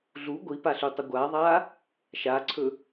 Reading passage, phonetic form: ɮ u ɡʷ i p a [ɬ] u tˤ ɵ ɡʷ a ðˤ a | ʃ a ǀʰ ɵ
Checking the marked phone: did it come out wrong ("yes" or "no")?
no